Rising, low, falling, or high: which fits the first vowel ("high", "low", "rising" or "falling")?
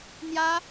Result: high